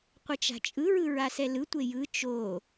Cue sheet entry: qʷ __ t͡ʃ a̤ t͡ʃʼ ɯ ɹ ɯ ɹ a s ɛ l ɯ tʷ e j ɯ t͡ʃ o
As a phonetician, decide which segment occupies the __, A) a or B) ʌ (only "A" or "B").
B